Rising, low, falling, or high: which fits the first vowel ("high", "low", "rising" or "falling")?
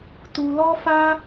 low